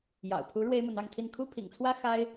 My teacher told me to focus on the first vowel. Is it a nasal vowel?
no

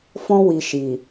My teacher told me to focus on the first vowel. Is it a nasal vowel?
yes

